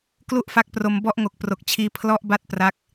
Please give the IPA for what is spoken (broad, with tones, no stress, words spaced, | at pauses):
klu˥˩ʔfa˦˥k̚pro˧m bɔ˦˥ʔŋo˨˩k̚pro˨˩k̚t͡ɕʰiː˧ pʰlɔ˦˥ʔ ba˥˩t̚pra˦˥k̚